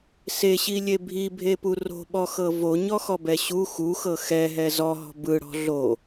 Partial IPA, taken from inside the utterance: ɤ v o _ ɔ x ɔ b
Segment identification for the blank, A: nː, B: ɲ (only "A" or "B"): B